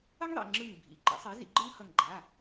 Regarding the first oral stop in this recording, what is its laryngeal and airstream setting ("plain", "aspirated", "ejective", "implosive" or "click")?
click